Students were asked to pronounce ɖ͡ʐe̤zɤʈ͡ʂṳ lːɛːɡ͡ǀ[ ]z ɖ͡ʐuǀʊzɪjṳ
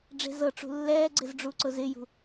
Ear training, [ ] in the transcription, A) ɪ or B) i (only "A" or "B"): A